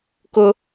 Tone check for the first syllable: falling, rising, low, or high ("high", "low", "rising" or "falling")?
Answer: high